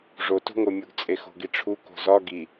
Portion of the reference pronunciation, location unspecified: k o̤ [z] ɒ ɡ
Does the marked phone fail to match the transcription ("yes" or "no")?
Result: no